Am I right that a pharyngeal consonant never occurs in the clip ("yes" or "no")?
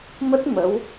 yes